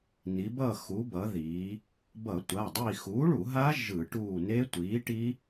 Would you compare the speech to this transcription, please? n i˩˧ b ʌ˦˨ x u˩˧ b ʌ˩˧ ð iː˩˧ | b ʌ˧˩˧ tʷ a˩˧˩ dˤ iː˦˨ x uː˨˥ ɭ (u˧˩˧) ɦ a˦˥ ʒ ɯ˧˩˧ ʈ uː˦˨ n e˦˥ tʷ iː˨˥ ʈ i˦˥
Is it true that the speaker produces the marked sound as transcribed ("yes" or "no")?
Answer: yes